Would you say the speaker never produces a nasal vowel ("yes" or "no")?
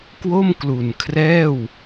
yes